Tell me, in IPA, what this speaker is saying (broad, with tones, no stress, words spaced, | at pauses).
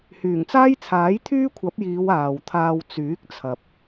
hyː˨˩ŋt͡saː˥jt͡sʰaː˨˥j t̪ʰyː˥kʷʰɐ˨˥p̚jiː˨˧w aː˨wt̪ʰaː˧w t͡syː˨˥k̚t͡sʰɐ˨p̚